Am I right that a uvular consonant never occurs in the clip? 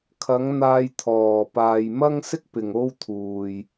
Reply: yes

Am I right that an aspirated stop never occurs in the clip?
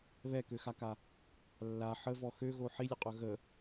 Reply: yes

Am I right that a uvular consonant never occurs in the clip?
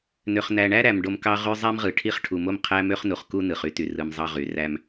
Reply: no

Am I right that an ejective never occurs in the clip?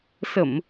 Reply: yes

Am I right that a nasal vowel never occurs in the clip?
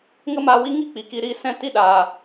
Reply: no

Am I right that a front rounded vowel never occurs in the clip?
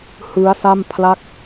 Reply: yes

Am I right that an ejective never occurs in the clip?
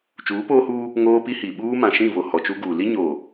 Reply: yes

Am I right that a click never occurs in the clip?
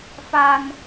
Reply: yes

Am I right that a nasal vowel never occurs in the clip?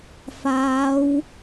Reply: yes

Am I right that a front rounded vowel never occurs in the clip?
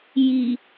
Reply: yes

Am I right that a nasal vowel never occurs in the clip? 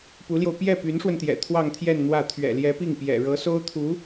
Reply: yes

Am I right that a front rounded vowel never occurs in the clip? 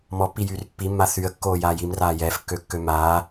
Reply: no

